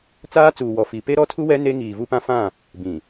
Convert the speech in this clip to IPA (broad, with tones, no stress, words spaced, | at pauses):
t͡saː˦t͡suː˨wɔ˨ fi˨ pe˦ɾɔ˦tʰu˦ wɛ˦ ne˦ŋiː˨vu˦pã˦ fã˦˨ | bĩ˨